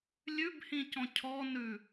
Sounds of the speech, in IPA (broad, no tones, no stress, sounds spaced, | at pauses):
lʲ ʉ b h ĩ c ɔ̃ cʰ ɔ n ʉ